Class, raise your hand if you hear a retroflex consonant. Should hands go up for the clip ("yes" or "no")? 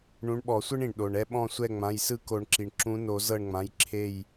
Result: yes